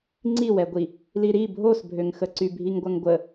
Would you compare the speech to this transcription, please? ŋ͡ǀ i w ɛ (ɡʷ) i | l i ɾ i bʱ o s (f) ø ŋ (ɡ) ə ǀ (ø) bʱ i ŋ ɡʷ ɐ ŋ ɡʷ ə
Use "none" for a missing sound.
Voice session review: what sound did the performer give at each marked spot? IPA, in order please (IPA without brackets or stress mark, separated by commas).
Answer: ɡʷ, bʱ, x, y